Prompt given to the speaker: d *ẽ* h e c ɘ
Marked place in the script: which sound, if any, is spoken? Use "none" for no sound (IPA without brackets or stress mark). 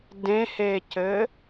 ẽ